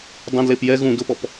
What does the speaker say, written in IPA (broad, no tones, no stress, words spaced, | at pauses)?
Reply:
dˤɛ̃dlep jɛ ɣũ dʊpɔp